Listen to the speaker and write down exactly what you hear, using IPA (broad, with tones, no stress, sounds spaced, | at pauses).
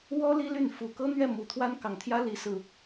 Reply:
w ɔ˦ l i˦ l y˥˨ n f u˨˩ k ɤ˦ n̪ ɥ ɛ˥˨ m u˨˩ t̪ʰ w a˦ n k ɑ˨˩ ŋ t̪ʰ j ä˦ l i˨˦ s ɹ̩˨˩